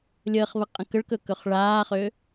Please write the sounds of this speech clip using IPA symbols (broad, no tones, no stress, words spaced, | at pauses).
lʲəːχβəqʼə̃ kəɭkɵkɵχ ɭaːχø